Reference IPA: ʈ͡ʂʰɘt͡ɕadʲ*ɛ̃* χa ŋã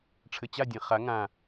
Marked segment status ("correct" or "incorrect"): correct